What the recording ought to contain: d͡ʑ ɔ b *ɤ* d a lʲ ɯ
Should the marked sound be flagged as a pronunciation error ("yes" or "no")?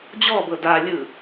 no